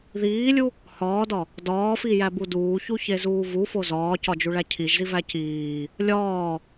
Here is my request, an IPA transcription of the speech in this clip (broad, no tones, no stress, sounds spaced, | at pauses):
ð iː lʲ u | h ɒː d ɒ | d ɒː f i j æ b u d uː ç u ç e z uː v u f o z ɒː c ɒ d͡ʒ u ɭ æ cʰ i ʒ z i v æ c iː | lʲ ɒː